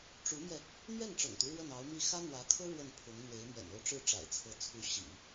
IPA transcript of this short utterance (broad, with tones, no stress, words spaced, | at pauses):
ʈ͡ʂu˧˥mjɛ˧ | n̪ɥɛ˥˩nʈ͡ʂɤ̰˨˩ŋt̪u˦ ɻwə˥˩nɑ˧˥ʊ̯mi˥˩ xä˥n̪wä˧˥kʰɤ˥ ɻwə˥˩npʰʊ˧˥ŋ n̪we˧˥ɪ̯mɥɛ̰˨˩no˥˧ʊ̯ ʈ͡ʂɻ̩˥˩ʈ͡ʂa̰˨˩ɪ̯t͡sʰɤ˧˥ t͡sʰu˧˥ ɕḭ˨˩˦